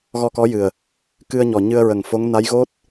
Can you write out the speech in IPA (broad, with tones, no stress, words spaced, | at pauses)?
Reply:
ɣɔ˧kɔ˧˥jɨ˨˩ə̯ | kɨ˧ə̯ɲɔ˨˩ ɲɨ˧ə̯ɹə˨˩ŋfo˧˥ŋ na˧˥jɣo˦˥t̚